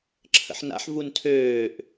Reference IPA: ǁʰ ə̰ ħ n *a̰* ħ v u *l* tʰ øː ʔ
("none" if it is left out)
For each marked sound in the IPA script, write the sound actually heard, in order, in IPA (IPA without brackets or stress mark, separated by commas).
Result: a̰, n